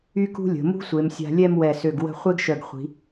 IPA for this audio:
y˥ k ṳ˥ lʲ ə̤˩˧ m ṳ˥ sʷ e˩˧ m sʲ a̤˧ lʲ ɛ˥˧ m w ɛ˧˩ s ø˧˩ ɡ w ə̤˥˧ χʷ e˥ ɡ ʃ œ˧˩ ɡ χʷ i̤˩˧

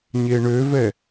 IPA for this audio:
ɲ e ɳ ø v ɛ

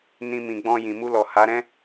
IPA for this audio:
n ĩ˧ m ĩ˨ ɡ͡b ɔ̃˧ j ĩ˨ m u˧ l ɔ˨ h a˨˦ ɾ ɛ̃˦

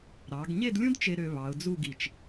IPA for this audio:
ɾ ɑ˩˧ ɡ ɲ e˥˧ d lʲ ũ˥ d t͡ʃ e˧ ɾ ø˧ β ɑ˩˧ ʊ̯ d͡z u˥˧ ɡ i˧˩ t͡ʃ

